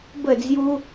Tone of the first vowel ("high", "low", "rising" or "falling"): falling